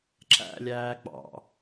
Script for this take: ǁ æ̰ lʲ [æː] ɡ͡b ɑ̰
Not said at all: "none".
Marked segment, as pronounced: æː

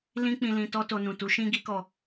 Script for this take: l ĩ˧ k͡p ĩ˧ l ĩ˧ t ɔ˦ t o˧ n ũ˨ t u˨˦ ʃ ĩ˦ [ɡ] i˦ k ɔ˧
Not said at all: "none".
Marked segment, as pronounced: ɡ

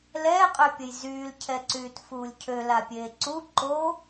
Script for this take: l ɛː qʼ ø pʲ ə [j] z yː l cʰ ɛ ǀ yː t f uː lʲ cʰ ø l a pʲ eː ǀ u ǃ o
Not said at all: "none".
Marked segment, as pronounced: j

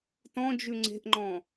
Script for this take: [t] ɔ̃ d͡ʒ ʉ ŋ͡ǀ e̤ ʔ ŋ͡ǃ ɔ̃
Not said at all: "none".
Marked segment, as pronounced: t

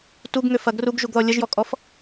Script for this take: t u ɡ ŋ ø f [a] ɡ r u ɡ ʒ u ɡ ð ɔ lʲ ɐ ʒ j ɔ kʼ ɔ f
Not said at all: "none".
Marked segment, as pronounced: ɐ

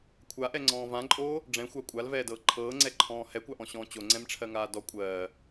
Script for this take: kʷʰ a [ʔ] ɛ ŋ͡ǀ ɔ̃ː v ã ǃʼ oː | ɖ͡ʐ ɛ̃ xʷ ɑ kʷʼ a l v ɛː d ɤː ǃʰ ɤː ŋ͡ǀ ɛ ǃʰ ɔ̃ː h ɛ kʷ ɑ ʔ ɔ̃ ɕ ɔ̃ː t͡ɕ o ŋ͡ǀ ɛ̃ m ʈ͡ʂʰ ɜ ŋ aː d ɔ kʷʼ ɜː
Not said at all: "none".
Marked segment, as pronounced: ʔ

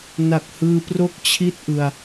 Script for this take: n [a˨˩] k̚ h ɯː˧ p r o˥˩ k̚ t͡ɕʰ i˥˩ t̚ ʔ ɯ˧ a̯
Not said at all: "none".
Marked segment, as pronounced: a˨˩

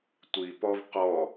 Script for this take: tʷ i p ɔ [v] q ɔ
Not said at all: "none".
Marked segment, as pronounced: v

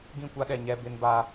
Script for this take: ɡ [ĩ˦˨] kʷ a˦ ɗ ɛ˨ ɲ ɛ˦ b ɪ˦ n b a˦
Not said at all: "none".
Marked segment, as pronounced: ĩ˦˨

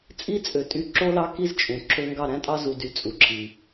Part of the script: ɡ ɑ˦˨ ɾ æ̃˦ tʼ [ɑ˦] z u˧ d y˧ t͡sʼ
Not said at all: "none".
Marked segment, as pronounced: ɑ˦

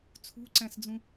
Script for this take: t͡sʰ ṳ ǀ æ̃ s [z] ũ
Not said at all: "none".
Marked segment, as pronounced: d͡z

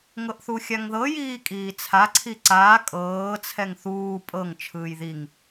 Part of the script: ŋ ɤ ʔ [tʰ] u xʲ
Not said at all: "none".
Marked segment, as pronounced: θ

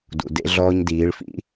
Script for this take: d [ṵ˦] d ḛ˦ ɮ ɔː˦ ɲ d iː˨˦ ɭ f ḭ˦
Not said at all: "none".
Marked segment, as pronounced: ṵ˨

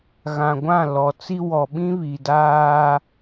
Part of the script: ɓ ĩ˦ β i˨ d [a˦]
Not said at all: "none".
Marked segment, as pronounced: aː˦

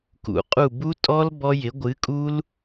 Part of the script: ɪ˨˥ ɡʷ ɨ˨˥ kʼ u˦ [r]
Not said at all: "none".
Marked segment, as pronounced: l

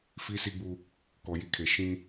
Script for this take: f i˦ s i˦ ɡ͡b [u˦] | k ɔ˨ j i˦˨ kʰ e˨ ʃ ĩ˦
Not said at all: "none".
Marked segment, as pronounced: u˦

